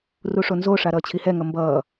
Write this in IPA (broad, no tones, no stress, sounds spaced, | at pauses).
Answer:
r u ʂ o n z o ʂ a ɾ ʌː t͡ɕʰ i h ɛ ŋ ʌ m b ʌː